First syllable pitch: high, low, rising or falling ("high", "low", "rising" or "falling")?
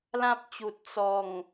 high